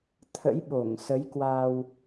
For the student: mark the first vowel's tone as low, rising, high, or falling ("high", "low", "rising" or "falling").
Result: rising